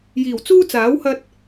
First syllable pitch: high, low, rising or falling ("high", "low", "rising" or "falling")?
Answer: low